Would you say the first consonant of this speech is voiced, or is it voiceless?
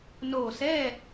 voiced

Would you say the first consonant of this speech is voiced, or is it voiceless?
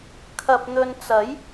voiceless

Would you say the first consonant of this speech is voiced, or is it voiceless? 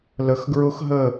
voiced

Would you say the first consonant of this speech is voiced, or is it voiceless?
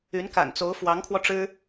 voiced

